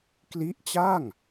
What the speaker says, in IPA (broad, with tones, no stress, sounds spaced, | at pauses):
k l i˦˥ ʔ t͡ɕ a˥˩ ŋ